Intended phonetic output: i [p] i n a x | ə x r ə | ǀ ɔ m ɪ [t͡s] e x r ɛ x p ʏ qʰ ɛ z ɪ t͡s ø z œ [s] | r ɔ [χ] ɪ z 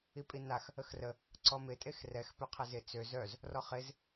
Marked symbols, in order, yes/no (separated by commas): no, no, no, yes